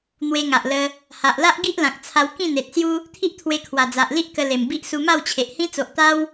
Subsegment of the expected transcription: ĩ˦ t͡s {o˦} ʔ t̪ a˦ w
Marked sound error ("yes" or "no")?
yes